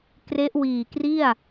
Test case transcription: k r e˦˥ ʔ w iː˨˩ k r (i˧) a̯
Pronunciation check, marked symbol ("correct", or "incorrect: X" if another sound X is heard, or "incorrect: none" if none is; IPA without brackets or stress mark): incorrect: i˥˩